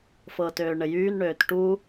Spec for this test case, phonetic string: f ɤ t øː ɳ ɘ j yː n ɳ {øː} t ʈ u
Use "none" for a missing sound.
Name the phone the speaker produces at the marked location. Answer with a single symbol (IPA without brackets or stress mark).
øː